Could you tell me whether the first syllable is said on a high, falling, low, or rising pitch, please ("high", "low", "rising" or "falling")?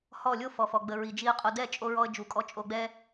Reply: falling